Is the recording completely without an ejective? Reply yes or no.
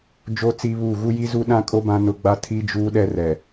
no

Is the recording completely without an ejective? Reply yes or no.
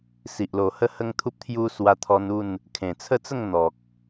yes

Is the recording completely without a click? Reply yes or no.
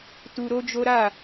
yes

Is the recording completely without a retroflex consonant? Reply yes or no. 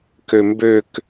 yes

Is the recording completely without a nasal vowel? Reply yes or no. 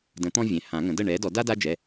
no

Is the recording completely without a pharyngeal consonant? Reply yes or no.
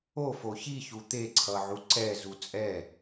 no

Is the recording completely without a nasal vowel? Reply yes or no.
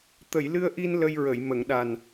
yes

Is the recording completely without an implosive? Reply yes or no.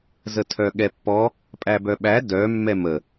no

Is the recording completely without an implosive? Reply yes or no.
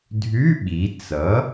no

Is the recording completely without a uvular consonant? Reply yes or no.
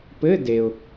yes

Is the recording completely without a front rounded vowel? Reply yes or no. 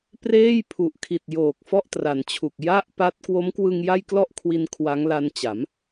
yes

